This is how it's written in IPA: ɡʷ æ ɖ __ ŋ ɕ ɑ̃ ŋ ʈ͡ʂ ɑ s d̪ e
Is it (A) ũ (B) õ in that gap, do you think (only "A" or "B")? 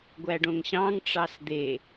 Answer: B